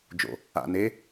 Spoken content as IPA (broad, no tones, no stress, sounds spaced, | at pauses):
d͡ʒ o̰ | a̰ n e